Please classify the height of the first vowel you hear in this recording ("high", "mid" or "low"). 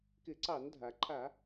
high